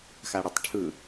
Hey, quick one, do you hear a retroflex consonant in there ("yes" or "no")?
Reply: yes